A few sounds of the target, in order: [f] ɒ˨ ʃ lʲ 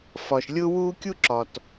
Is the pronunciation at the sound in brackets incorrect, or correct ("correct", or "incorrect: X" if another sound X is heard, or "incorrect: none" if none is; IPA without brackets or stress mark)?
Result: correct